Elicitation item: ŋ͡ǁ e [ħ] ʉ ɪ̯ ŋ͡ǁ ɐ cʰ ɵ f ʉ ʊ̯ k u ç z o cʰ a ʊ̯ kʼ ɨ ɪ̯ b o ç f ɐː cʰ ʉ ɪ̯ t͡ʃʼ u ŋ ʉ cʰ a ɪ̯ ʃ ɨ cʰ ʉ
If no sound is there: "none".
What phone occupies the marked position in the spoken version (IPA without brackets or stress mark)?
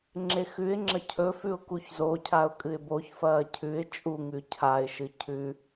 x